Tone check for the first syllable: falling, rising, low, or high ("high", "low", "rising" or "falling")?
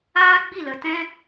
high